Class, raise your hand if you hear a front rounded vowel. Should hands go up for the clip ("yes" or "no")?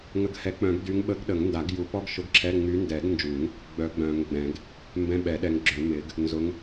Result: yes